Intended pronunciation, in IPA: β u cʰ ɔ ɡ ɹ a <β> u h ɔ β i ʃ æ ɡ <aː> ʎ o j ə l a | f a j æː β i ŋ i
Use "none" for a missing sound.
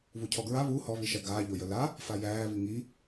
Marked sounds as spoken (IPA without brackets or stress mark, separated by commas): β, aː